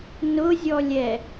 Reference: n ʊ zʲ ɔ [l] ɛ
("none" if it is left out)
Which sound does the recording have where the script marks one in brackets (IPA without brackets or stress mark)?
lʲ